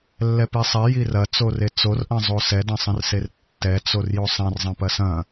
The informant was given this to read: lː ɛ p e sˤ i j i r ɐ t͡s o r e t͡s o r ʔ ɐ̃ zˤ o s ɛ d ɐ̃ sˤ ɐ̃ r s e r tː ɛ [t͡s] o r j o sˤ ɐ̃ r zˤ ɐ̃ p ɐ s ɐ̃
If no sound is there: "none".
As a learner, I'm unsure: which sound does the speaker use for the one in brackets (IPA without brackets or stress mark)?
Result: t͡s